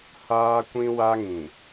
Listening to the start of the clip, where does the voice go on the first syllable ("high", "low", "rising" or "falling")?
high